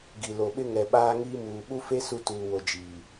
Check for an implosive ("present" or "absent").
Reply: present